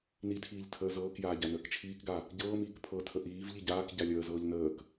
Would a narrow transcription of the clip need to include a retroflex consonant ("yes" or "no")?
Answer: no